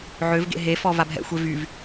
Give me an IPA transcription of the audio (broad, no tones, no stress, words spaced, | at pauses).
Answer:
ʕøvɡḛ ɦefɔ vabɦɛ̰xʷe vyv